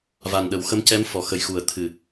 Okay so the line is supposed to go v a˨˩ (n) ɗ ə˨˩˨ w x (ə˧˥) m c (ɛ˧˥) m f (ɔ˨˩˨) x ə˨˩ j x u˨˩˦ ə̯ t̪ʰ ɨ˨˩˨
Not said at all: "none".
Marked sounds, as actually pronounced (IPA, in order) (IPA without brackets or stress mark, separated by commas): n, ə˧˥, ɛ˧˥, ɔ˨˩˨